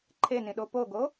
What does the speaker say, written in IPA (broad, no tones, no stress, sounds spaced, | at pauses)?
ǃʰ e n ĩ ɗ o p o ɡ o